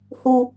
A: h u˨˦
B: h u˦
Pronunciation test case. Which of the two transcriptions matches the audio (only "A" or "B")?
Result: B